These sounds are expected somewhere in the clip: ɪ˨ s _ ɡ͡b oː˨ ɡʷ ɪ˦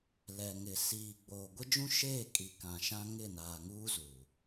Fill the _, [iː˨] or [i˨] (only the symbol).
iː˨